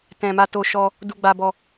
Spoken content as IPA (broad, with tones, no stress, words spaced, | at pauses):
tɛ̃˨ma˧to˧ ʃɔ˧ | du˧ɡ͡ba˧bɔ˧